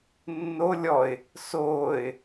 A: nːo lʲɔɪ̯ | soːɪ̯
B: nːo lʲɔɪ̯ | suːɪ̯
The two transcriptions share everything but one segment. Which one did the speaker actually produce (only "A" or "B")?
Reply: A